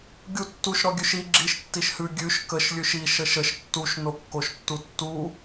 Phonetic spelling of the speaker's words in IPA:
ɡʲ u tː u ʃ ɾ ɔ ɡʲ ʉ ʃ i ɡ͡ǁ i ʃ tː i ʃ h ʉ ɡʲ ʉ ʃ k ə ʃ lʲ ʉ ʃ i ʃ ə ʃ ə ʃ tː u ʃ n o kː o ʃ tː u tː u

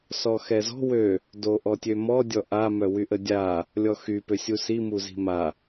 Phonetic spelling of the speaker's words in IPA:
s ɔ x ɛ z ɔ̤ w ø | d o ʔ ɔ tʲ ø m ɔ dʲ ɔ ʔ a m œ w y ʔ ə dʲ a | lʲ ɔ x y p ø sʲ u s i m u z i̤ m a

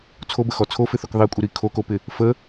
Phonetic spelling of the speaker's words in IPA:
t͡sʰ o b ə x ɔ t͡sʰ o f ɪ θ o k ðˤ i kʷʼ ɪ ɾ i kʰ o k o p ɪ | f ə

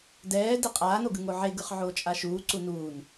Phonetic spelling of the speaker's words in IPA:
d ɛː d i qʼ aː n o ɡ ɯ ŋ o ʕ e ɡ ɯ χ ʕ oː t͡ʃʼ a ʃ uː ǀ u n uː n

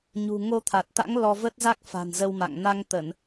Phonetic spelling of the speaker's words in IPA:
ɲ ṳ˨˩ ŋ o˧ t̪ʰ a˨˩ t̚ t̪ a̰˧˥ ŋ l ɔ˧ v ə˦˥ t̚ z a˦˥ k̚ f a̤˨˩ n z ə˧ w m a̰˧˨ ŋ n a˧ ŋ t̪ ə˧˩˨ n

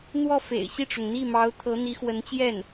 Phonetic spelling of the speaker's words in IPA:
n̪ w ɔ˥˩ f ḛ˨˩ ɪ̯ ɕ i˥˩ ʈ͡ʂ ʊ˩ ŋ n̪ i˥˩ m ɑ˧˥ ʊ̯ t̪ʰ ɤ˧˥ n̪ i˧˥ x w ə˧˥ n t͡ɕ j ɛ˥˩ n

